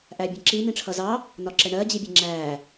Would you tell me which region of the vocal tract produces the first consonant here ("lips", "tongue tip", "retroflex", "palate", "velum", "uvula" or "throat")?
throat